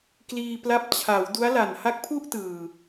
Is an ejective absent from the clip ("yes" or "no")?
yes